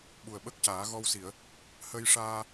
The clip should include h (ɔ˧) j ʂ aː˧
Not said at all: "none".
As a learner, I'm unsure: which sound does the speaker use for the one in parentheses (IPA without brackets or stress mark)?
ə˧